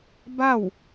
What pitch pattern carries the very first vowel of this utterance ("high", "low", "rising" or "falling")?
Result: falling